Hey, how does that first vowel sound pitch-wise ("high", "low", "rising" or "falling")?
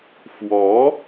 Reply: rising